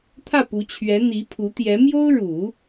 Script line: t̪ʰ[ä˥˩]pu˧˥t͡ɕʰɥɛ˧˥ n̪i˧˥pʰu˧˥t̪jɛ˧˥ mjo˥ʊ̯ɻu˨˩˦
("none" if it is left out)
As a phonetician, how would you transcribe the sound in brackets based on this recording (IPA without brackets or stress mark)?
ä˥˩